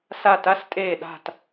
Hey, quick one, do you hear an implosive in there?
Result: yes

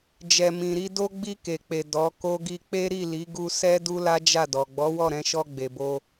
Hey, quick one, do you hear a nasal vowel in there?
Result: yes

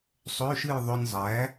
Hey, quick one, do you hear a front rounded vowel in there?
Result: yes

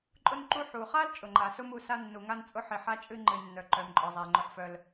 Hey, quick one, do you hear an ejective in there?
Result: yes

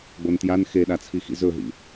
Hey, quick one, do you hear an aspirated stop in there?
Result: yes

